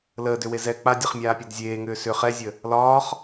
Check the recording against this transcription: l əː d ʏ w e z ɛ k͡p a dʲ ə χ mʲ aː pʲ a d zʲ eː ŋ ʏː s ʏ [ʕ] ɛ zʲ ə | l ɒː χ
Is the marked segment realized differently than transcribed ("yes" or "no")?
yes